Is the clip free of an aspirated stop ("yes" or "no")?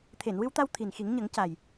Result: no